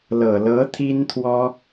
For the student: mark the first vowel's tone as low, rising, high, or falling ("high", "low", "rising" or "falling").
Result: low